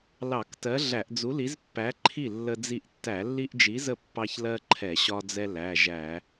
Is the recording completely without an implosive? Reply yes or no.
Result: yes